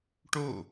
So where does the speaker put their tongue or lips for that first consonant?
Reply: retroflex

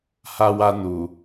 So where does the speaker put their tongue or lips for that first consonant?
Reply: throat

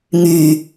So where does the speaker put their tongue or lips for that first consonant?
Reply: velum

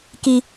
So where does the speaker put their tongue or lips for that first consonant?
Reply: velum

